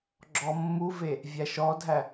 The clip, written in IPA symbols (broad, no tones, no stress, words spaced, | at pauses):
ɡ͡ǁɔmːuve | vʲæʃɔdʱæ